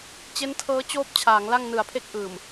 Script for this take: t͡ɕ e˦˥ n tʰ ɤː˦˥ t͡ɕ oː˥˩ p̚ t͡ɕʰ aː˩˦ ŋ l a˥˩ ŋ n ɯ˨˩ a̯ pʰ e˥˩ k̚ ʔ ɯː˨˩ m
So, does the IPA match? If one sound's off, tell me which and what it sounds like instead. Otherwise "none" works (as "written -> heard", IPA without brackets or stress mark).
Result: none